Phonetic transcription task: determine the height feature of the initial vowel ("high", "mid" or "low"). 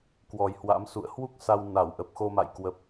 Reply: mid